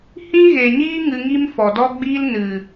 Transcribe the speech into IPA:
h ĩ˦ ɣ e˨ ɲ iː˦ ŋ ɨ˧ ŋ i˦ m f ɔ˨ d ɔ˦ ɡ͡b iː˦ l n ɨ˨

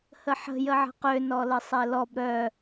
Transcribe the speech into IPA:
h ə ħ ə̤ j ə ʕ ə̤ q ø n ɔ l ə sˤ e l ɔ b ɾ œ

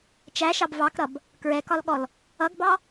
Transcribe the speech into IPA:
t͡ʃ æ ʃ ɑ b v ɑ k ɾ ʌ b | k ɹ ɛ k ɒ l ɠ ɔ l | ʌ ɡ b ɑ

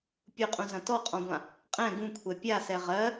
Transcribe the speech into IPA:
pʲ u qʼ ũ z ɐ̃ t ɔ qʼ ɔ̃ ɡʷ ã | qʼ ɛ̃ ɡ ũ kʷʰ ɛ pʲ a s ɛ ʁ ɜ

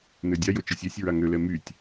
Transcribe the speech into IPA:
n ø dʲ a j o t͡ʃ ɨ sʲ ɛ sʲ ɹ a ŋ ø l ɛ m y tʲ

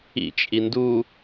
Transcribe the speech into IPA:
ḭ t͡ʃʼ i n d u

